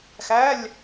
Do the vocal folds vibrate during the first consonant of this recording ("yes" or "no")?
no